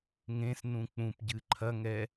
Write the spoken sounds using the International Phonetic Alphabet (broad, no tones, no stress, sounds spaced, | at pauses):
ŋ ẽ s n ũ k͡p ũ p ɟ ɨ ǃʰ ɐ ŋ ɛ